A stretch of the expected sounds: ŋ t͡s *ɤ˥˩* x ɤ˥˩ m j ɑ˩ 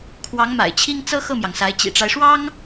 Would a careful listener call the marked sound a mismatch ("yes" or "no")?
yes